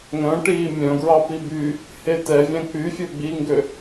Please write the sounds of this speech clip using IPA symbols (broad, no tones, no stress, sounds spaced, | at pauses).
ŋ œ̃ ʈ iː mʲ œ̃ ɡ ɹ ɑ p i b y | h e t ɛ vʲ æ̃ k͡p y fʲ ø ɡ͡b i ŋ ɡ ø